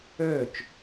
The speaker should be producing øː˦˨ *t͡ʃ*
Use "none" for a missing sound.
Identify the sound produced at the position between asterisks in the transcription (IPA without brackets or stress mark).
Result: t͡ʃ